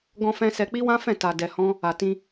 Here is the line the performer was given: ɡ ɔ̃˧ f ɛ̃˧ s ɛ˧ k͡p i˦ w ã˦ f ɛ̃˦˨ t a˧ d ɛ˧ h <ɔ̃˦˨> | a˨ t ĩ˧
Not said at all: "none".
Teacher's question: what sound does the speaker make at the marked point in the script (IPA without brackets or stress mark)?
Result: ɔ̃˦